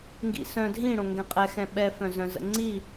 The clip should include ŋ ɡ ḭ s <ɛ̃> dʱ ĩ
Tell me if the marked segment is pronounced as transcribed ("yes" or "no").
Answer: no